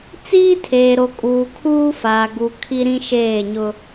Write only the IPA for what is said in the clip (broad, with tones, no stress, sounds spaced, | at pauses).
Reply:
t͡s iː˦ tʰ eː˨ ɾ o˨ kʼ uː˨ kʰ uː˦ f aː˨ ɡ u˨ kʰ i˦ ɾ ĩ˦ ʃ eː˦˨ ɲ ʊ˦